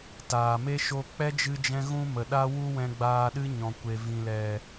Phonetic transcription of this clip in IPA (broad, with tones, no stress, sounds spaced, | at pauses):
t aː˨ m e˦ ʃ o˧ k͡p ɛ˦ d͡ʒ ɨ˧ d͡ʒ ɛ̃˧ ɣ ũ˦ m ə˨ ɗ a˦ w u˦ w ɛ̃˧ ɡ͡b aː˧ ɗ ɨ˦ ɲ ɔ̃˨ kʷ e˨ v ĩ˨ l ɛ˨